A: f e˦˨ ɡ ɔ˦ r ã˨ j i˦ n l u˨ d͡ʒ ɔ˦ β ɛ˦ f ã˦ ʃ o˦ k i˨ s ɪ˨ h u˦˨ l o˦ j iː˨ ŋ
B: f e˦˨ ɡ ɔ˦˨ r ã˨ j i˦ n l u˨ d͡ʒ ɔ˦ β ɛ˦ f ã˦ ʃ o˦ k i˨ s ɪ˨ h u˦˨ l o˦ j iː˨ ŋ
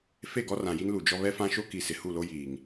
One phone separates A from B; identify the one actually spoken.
A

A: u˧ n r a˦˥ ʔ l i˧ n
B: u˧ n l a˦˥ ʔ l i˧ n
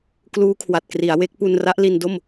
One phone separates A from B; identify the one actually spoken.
A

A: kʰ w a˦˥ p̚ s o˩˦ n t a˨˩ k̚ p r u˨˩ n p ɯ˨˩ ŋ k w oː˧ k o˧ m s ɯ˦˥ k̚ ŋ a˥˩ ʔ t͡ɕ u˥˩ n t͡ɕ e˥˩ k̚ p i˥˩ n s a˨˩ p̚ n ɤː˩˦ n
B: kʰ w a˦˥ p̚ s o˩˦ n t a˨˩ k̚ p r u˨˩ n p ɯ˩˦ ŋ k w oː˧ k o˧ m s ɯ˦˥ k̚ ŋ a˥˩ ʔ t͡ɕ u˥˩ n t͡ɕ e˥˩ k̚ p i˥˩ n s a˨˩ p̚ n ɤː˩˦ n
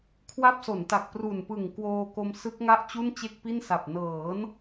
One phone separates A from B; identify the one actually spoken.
A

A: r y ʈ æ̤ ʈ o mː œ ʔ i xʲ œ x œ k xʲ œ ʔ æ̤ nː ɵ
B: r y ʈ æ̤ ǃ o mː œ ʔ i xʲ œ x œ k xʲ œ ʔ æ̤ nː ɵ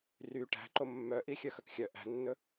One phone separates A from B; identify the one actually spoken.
B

